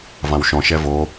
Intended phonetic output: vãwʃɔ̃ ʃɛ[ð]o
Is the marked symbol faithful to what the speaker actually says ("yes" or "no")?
no